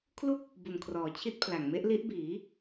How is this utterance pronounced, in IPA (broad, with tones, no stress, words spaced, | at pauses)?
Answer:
kʰlu˥˩k̚ | bu˨˩nkʰrɔː˩˦ t͡ɕʰi˦˥t̚pʰla˨˩ŋ me˦˥ʔli˦˥ʔbiː˩˦